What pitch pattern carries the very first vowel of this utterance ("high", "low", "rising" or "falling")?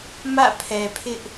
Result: falling